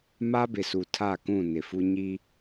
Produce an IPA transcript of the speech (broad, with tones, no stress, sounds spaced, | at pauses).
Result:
m a˦ b ɪ˨ s u˨ tʰ a˦˨ k ũ˦˨ n ɪ˨ f u˦ ɲ i˦